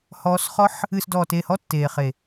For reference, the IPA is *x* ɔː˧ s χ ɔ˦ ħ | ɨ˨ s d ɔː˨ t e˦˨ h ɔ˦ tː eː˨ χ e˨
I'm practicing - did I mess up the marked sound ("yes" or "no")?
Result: yes